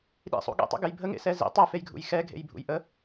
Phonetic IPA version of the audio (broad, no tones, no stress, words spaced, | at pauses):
ɗḭsˤṵ ɠḛtˤṵɡɛj bʱəŋḛsɛ zḭ tˤefejɡʱṵj xɛɡʱḛjbʱṵj ʔə